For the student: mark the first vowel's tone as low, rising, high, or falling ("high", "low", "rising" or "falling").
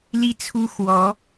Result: high